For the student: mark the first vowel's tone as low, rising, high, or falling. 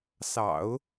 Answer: low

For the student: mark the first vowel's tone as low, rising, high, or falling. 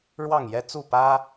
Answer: falling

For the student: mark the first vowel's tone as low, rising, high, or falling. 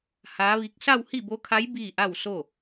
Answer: rising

